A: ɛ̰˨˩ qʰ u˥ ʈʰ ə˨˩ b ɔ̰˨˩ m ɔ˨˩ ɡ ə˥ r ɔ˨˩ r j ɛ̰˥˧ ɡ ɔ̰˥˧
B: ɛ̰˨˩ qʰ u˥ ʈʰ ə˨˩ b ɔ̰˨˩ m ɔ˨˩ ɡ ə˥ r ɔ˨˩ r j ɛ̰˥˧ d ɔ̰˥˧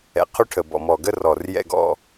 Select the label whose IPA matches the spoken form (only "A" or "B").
A